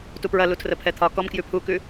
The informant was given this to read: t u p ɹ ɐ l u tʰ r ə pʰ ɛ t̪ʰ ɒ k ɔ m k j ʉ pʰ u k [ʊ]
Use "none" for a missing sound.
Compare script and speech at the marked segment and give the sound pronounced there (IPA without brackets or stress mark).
ʉ